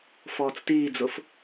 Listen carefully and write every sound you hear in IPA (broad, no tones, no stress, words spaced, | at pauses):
fɔːt͡stiːd͡zʊf